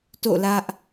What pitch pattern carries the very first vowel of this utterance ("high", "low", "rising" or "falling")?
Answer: falling